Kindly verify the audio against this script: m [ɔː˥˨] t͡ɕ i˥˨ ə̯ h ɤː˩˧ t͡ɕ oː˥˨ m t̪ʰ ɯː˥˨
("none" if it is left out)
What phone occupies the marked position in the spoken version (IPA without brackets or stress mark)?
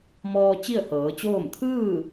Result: ɔː˧